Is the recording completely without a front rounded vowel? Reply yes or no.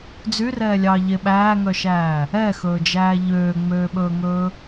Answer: no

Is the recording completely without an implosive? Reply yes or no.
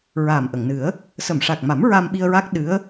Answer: no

